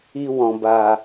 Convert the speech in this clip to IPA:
i˧ w ɔ̃˨ b a˨

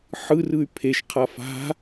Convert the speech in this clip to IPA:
ħ ɯ r ɯ y̯ pʰ e ʃ qʰ a f a̤

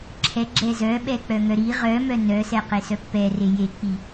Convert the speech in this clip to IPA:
ǁʰ ɛ ɡ͡ǁ ɛ z œ ɓ ɛ k͡p œ ŋ œ ɾ i ʁ œ m œ n œ s ɛ q e s œ pː ɛ r e j e k͡p i

